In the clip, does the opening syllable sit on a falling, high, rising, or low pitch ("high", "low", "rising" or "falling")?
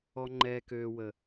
low